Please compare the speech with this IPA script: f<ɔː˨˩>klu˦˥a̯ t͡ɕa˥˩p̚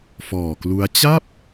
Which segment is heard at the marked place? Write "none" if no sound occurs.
ɔː˨˩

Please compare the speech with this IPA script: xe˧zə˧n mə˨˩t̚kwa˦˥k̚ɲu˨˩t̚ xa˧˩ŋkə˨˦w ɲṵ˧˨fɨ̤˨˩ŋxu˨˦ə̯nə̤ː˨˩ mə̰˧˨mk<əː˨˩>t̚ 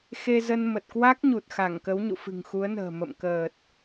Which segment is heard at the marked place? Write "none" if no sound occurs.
əː˨˩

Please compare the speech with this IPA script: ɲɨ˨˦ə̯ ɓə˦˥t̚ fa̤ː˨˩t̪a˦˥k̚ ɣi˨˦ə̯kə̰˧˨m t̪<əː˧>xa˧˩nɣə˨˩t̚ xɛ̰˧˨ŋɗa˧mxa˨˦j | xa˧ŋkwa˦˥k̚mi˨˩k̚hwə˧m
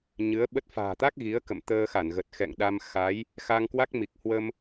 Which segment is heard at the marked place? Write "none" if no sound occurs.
əː˧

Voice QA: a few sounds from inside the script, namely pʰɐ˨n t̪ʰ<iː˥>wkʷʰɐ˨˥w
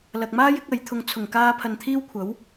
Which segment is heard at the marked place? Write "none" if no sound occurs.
iː˥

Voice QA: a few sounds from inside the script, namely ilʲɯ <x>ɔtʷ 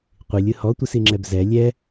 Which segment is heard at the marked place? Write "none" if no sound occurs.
h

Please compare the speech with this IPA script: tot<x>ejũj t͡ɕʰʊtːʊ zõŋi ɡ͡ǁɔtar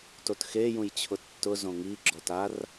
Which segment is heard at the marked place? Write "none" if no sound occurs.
x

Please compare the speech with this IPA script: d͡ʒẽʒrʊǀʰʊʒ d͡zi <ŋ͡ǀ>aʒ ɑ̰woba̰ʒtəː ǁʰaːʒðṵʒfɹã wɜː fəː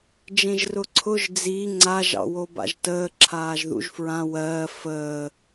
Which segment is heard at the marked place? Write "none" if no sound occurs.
ŋ͡ǀ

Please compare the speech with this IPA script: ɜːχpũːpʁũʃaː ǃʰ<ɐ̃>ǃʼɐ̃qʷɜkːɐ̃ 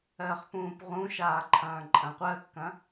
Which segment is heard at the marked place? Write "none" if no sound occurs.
ɐ̃ː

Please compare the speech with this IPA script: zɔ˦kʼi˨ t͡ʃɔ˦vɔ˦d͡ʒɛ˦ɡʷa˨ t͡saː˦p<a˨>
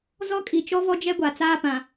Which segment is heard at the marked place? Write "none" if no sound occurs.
ã˨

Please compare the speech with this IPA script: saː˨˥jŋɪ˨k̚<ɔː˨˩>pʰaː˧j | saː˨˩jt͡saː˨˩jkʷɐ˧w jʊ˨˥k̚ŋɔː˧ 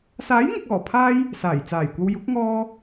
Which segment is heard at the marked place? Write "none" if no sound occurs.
ɔː˨˩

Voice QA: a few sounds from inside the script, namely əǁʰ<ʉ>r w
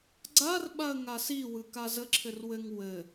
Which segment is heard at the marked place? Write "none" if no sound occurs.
ɘ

